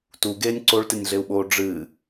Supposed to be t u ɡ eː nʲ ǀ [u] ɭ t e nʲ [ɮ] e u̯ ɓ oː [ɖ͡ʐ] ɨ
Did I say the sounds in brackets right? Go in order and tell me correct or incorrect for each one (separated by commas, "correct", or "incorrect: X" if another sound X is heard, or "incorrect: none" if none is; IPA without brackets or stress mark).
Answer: incorrect: o, correct, correct